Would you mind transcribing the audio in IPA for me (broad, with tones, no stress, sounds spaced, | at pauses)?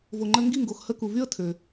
v o˨ ŋ͡ǃ ə˧ ŋ ɡ i˦˨ ŋ ɡ o˨ x h ə˦ k u˨ v y˦ ə̯ tʰ ø˨